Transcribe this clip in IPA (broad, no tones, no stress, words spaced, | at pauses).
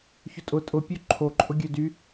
çʊtʼʊ tʼʊpʲø ǃʰoǃʼʊ ɡʲødy